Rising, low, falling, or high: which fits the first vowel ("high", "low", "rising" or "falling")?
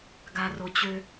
low